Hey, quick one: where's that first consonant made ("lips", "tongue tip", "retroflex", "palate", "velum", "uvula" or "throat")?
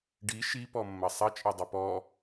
retroflex